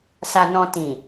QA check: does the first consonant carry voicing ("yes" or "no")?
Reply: no